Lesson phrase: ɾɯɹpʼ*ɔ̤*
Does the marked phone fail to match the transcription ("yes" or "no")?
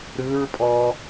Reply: yes